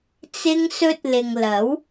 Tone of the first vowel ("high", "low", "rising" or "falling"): high